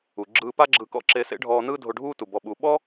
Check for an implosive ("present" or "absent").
present